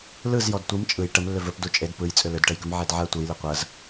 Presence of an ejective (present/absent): present